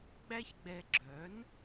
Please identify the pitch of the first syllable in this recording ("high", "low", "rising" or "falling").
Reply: high